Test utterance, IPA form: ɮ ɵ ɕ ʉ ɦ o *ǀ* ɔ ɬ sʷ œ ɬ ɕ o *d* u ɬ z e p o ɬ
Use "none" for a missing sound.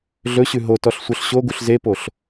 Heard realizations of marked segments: t, ɡ

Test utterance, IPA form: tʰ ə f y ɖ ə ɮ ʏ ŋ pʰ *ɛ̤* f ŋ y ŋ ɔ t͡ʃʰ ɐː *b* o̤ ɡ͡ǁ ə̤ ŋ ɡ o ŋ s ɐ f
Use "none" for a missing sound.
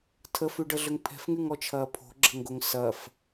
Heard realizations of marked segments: ɛ̤, pʰ

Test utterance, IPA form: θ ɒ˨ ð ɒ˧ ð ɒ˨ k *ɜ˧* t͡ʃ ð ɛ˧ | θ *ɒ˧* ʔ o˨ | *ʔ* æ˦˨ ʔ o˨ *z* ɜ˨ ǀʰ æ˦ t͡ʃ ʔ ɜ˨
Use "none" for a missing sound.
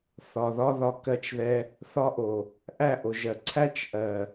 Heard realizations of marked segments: ɜ˧, ɒ˧, ʔ, ʒ

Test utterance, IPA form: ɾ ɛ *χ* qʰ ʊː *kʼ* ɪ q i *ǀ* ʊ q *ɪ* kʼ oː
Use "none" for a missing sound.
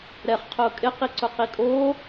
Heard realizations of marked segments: χ, kʼ, ǀ, i

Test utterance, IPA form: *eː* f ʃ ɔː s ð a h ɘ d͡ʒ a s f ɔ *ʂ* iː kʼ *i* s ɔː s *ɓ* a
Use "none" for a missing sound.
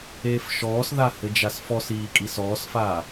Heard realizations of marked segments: eː, s, i, f

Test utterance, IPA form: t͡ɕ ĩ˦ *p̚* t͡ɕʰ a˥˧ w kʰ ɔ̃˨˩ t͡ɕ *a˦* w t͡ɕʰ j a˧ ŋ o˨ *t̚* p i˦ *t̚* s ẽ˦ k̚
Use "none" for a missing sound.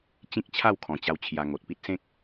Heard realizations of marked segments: k̚, a˧, t̚, t̚

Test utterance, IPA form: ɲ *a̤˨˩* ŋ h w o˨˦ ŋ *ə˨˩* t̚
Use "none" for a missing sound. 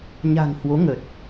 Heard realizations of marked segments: a̤˨˩, ə˨˩

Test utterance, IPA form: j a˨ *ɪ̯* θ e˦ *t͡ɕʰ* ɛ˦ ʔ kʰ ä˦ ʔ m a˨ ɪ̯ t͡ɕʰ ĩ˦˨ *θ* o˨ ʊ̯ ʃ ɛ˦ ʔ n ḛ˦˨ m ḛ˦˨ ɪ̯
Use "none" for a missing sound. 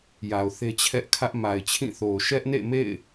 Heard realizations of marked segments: ʊ̯, t͡ɕʰ, θ

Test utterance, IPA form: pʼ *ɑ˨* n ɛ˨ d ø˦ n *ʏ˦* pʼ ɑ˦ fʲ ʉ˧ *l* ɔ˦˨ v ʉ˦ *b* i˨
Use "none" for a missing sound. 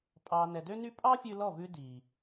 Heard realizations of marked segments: ɑ˨, y˦, l, d

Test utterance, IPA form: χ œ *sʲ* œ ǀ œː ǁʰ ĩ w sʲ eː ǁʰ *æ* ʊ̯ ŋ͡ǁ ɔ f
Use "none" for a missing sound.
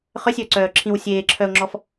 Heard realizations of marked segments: sʲ, œ

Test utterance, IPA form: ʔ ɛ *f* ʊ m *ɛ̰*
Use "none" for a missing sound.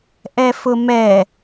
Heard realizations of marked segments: f, ɛ

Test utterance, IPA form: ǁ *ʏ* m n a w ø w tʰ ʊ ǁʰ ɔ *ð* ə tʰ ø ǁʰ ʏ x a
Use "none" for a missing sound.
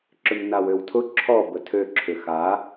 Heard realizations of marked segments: ʏ, b

